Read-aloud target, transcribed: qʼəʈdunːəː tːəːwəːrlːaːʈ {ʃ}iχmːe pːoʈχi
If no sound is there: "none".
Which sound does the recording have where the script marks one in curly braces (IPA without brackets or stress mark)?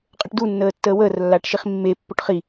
ʃ